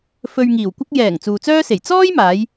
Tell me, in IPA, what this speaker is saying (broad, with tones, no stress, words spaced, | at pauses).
fɵ˧ɥŋiː˨˩wkʷɐ˥k̚ jɛː˨˩ŋ t͡suː˨t͡sœː˥se˨˩j t͡sɔː˥jmaː˨˧j